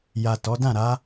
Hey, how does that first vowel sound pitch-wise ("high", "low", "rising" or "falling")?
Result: low